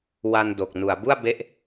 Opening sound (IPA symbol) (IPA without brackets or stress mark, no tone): w